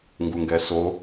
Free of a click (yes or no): yes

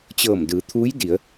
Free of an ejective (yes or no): yes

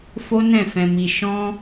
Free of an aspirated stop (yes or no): yes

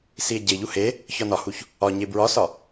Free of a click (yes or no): yes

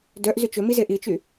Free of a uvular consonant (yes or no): yes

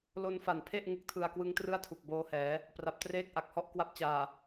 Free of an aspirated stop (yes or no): no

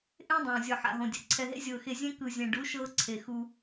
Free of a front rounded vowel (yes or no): yes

